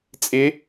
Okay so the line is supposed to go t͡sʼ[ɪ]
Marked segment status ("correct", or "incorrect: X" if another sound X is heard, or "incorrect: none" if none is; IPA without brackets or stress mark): correct